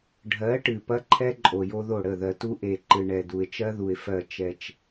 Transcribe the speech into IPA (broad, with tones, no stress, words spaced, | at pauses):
ɖʱɜ˨˦ ʈɨ˨pɐ˦ǃʰɛ˦ ǃʼo˨jo˦ðo˦˨ ɽə˦˨ðɜ˨tu˦ ʔe˨ ǃɨ˨ɳɛ˨du˨ɪ̯t͡ʃɜ˦ ðu˨ɪ̯fɜ˦˨ t͡ʃɛ˦t͡ʃ